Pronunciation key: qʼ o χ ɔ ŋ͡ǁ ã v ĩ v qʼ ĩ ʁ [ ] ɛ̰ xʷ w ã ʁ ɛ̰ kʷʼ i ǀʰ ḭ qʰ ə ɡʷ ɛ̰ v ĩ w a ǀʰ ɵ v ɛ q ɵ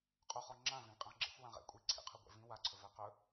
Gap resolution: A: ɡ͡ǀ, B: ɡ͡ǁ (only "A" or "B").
B